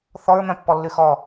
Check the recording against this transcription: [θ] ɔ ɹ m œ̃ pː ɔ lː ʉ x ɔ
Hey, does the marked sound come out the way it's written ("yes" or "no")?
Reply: yes